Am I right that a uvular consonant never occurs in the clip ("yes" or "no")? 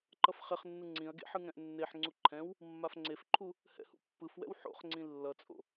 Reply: no